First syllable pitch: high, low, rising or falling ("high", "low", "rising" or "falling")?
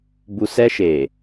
low